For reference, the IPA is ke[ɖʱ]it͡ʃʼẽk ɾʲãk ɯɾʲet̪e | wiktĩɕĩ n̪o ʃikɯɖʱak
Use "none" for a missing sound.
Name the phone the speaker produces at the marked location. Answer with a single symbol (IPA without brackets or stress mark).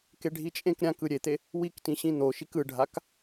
ɖʱ